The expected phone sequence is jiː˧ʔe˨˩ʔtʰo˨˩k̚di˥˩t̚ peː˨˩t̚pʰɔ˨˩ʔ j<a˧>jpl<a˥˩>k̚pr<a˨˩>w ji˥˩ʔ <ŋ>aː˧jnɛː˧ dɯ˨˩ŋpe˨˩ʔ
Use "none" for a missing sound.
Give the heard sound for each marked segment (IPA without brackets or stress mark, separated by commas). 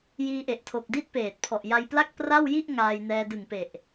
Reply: a˧, a˥˩, a˥˩, ŋ